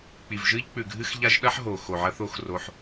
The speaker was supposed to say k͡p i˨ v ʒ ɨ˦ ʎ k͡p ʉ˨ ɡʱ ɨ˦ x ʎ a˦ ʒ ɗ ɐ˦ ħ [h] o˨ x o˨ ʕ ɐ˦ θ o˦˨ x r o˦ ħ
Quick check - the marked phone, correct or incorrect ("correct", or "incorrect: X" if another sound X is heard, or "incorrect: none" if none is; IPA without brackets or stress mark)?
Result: incorrect: ɦ